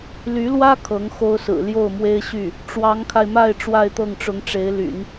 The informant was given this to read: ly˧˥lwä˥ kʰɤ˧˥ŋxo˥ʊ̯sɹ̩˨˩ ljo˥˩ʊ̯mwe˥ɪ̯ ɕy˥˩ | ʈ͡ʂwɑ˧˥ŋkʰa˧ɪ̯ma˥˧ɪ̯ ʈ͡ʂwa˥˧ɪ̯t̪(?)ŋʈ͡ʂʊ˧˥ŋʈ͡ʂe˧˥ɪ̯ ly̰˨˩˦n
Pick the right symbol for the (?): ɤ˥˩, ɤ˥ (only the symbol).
ɤ˥˩